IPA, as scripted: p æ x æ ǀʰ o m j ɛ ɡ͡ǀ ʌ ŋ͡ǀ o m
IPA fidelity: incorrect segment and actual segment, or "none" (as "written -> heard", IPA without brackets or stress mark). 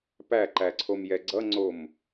x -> ǃ